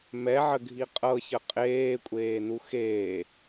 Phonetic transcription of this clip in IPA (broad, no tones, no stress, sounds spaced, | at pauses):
m ɛ ʕ ə ɡʱ i qʼ ɤ ç ə qʼ eː kʷʼ eː n u x eː